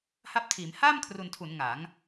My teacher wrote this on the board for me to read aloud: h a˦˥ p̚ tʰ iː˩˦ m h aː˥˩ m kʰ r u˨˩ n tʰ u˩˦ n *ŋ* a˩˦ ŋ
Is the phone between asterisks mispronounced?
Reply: no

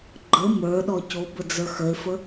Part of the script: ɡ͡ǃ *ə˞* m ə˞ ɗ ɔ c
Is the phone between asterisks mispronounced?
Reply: yes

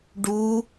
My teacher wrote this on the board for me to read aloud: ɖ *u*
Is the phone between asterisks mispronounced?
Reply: no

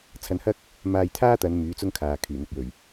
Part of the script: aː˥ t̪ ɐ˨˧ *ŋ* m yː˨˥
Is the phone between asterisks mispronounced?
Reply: yes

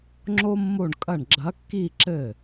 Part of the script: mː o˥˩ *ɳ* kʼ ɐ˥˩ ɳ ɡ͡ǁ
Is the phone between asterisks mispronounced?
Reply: no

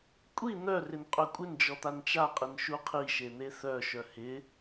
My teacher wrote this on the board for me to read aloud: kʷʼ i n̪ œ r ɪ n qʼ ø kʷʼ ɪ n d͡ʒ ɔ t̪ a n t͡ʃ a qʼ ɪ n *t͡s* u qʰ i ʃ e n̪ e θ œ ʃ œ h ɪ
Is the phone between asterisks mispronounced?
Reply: yes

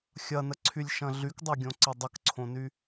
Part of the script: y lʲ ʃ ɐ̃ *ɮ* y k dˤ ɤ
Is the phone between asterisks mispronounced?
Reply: no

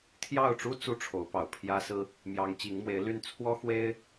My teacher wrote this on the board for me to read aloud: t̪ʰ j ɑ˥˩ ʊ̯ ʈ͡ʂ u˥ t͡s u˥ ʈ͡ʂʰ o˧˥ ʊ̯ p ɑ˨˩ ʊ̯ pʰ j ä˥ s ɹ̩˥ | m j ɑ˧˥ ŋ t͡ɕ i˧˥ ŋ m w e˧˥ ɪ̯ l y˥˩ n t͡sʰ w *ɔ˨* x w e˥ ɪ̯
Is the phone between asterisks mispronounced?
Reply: yes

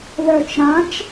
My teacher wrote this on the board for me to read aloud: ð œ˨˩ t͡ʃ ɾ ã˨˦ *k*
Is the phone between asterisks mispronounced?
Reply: yes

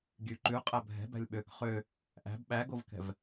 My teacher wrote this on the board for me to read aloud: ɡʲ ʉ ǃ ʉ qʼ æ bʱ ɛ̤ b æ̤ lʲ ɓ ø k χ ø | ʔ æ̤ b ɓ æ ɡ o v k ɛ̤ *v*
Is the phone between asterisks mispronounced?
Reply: no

